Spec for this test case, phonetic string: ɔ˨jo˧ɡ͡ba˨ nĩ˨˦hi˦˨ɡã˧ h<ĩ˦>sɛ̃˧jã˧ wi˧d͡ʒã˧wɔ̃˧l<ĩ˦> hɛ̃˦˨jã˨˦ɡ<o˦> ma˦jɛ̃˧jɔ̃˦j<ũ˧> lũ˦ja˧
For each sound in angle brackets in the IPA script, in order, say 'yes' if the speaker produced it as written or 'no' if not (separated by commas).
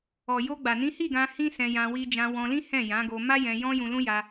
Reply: yes, yes, no, yes